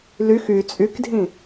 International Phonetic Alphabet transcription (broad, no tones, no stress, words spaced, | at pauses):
lyx y t͡sʼykdʱĩ